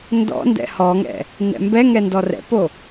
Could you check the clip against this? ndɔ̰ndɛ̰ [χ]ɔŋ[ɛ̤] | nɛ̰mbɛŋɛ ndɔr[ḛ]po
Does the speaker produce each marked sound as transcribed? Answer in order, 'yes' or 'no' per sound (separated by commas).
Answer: no, no, no